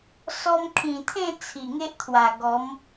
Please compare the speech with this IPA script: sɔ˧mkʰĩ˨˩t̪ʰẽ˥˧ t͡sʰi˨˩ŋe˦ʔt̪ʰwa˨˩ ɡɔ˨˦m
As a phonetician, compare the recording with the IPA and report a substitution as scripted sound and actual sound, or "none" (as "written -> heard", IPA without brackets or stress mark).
none